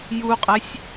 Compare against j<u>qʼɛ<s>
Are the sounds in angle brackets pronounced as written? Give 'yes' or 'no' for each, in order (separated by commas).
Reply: yes, no